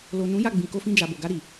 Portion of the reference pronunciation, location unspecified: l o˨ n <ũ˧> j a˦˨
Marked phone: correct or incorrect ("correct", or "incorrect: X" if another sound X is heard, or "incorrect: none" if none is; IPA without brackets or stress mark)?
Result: incorrect: ũ˨˦